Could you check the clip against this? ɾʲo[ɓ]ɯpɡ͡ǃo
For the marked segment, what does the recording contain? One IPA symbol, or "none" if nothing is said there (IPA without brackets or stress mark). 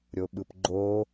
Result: ɓ